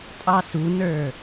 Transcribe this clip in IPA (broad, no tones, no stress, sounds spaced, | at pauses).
tʼ ɑ s u n ə˞